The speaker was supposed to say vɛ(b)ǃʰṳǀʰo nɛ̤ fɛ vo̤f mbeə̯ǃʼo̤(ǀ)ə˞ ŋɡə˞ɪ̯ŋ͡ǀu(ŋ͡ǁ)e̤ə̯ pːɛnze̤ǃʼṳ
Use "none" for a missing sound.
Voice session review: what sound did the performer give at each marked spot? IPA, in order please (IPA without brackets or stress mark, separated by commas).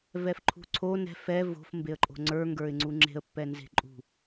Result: f, ŋ͡ǀ, ŋ͡ǁ